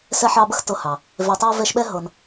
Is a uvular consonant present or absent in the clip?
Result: absent